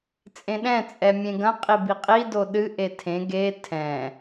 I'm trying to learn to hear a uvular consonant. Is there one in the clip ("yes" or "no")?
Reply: yes